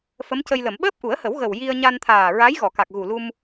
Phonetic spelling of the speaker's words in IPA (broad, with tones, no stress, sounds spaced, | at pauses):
f ə˧˥ m c ə˧ j l ə˨˩˨ m ɓ əː˦˥ p̚ ʔ u˨˩˦ ə̯ h ə˨˩˦ w ɣ ə˨˩ w j i˧ ə̯ ɲ a˧ n t̪ʰ aː˨˩ ɹ a˧˥ j ɣ ɔ˨˩˨ k a˨˩ k̚ ɣ u˨˩ l u˧ m